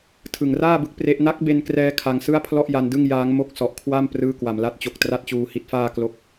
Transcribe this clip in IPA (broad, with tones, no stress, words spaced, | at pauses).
tʰɯ˨˩ŋraː˥˩bɯ˦˥k̚ pre˦˥ʔ na˦˥k̚be˧nkrɛː˧ kʰa˧ŋsɯ˥˩a̯pʰlɔ˥˩ʔ ja˧ndɯ˥˩ŋ jaː˦˥ŋmo˥˩k̚ sɔ˨˩ʔkʰwa˥˩m prɯː˥˩ kwa˨˩mla˦˥t̚t͡ɕo˨˩k̚ tra˥˩t̚t͡ɕuː˧hi˦˥t̚faː˥˩ klo˥˩k̚